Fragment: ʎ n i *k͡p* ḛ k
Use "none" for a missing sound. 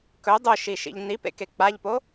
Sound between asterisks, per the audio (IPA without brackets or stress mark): p